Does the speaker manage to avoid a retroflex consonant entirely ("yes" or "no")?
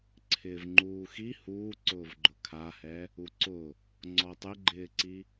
yes